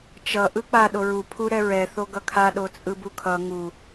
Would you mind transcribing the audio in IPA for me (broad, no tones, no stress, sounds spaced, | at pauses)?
t͡ʃ ʌ ʔ ɯ k͡p a ɗ o ɹ u pʰ u ɾ ɛ ɹ ɛ θ o ɡ ʌ kʰ a ɗ o t͡sʼ ɯ b u kʰ ʌ ŋ u